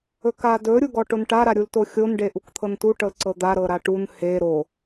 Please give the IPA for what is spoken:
ɵ k a d ɵ ɾʲ u ɡ ɔ ʈ o n ʈ a ɾ a ɾʲ u l t o xʲ o n ɖ e ʔ u k t̪ʰ ɤ n t u ʈ ɤ l ǀ ɤ d̪ a ɾ ɤ ɾ a ʈ u n h e ɾ o

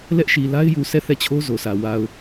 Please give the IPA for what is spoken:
l ɛ˦ ʔ ʃ i˨ l a˦ ɪ̯ j u˨ s ɛ˦˨ θ ɛ˦˨ t͡ɕʰ o˦ z o˨ sʰ ä˨ w a˨ ʊ̯

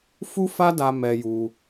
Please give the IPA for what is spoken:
f u˦ f a˦ d a˧ m ɛ˧ j u˧

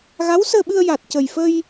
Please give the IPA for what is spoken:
ɣ a˧˥ w s əː˧ ɓ ɨ˧ ə̯ j a˨˩ t̚ c ə˨˩ j f ə˧ j

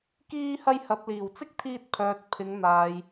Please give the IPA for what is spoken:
k iː˧ h ɐ˧ j h ɐ˨ p̚ l iː˨˩ w t͡s ɪ˥ k̚ t̪ʰ iː˧ t̚ pʰ œː˨ t̚ pʰ ɪ˨˧ ŋ n̪ aː˨ j

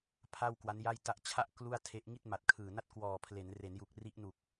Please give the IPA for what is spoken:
pʰ a˥˩ w k w a˦˥ n j a˥˩ j t a˥˩ ʔ t͡ɕʰ a˥˩ ʔ k l u˥˩ a̯ tʰ e˦˥ ʔ ŋ i˥˩ t̚ m a˨˩ t̚ kʰ ɯː˨˩ n a˥˩ t̚ k w ɔː˨˩ pʰ l e˩˦ n r e˩˦ n j u˨˩ k̚ r i˦˥ ʔ n u˨˩ k̚

